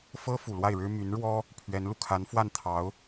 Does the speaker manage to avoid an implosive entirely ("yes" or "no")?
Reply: yes